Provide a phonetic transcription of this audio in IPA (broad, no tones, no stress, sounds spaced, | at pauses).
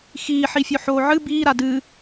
x iː ħ i fʲ o ħ oː ʕ ɨ b iː ɾ a d ɨ